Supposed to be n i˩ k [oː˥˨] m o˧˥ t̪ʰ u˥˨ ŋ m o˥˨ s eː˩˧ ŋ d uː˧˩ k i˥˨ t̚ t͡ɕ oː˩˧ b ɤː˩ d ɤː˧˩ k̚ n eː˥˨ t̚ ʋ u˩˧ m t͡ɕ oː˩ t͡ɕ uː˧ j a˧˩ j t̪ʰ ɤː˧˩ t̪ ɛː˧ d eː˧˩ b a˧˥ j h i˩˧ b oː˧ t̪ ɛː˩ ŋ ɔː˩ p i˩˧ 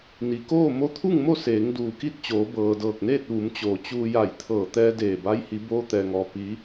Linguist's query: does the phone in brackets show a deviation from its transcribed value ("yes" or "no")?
no